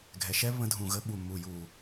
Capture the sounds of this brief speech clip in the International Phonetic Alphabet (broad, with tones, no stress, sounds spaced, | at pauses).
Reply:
ɡʱ ɛ˨ ʃ ɛ˦ β ə̃˧ dʱ ũ˨ ɣ ə˧ ɓ u˨ mː u˨ j u˨